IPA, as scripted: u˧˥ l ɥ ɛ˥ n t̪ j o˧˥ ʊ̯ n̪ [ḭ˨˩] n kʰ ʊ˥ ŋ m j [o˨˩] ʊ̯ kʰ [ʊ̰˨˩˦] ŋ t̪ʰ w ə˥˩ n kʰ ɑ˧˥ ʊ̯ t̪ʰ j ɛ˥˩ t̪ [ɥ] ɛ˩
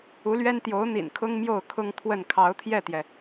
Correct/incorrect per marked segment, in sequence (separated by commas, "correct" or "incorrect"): correct, incorrect, incorrect, incorrect